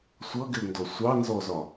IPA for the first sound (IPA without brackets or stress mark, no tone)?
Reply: sʷ